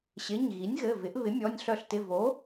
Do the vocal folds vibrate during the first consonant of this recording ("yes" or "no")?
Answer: no